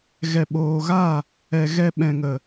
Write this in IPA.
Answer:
ɣ ɛ˨ ɓ oː˨ ɣ a˦˨ | ɛ˨ ɣ ɛ˧ ɓ ɛ̃˨ ŋ ə˨

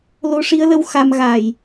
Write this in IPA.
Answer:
l o˧ ʂ i˧˥ ə̯ l ə˧ w x a˧ m ɣ a˨˩ j

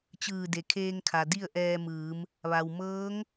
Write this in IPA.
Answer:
t͡ɕ ɯː˧˩ d e˩ kʰ eː˧ ŋ kʰ a˩ d i˥˨ ə̯ ʔ ɛː˧ m ɯː˩˧ m | ʋ a˩ w m ɤː˧˥ ŋ

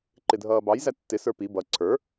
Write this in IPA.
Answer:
ǃ ɪ dʱ ʌː b ɑ j z æ tː ɪ s ə˞ p i b ʌ ǀʰ ə˞

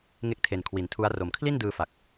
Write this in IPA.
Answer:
ŋ e˦˥ k̚ tʰ e˨˩ n kʰ w i˩˦ n tʰ u˦˥ a̯ r o˨˩ m kʰ l i˥˩ n d ɯː˧ f a˨˩ k̚

